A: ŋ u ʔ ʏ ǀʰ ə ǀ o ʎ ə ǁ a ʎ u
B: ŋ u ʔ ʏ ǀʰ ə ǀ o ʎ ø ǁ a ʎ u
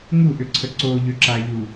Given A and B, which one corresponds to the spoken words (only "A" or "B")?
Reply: B